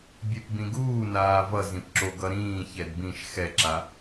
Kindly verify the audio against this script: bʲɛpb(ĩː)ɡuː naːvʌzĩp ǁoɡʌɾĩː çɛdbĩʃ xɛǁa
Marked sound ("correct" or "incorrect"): incorrect